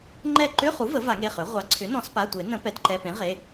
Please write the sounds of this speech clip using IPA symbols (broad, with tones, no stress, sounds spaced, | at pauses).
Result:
ŋ͡ǃ ɛ˦˨ ǃ ʏ˧˥˧ χ u˩˥ v ə˩˥ v a˨˩˦ ŋ e˩˧˩ χ ø˩˥ ʁʷ ɑ˩˥ ǀʰ ʏ˩˥ n ɔ̃˨˩˦ s p a˩˧˩ tʷ e˨˩˦ n ə̃˨˩˦ p ɛ˩˥ d ǃ ɛ˩˧˩ p ẽ˩˥ ʁ e˩˧˩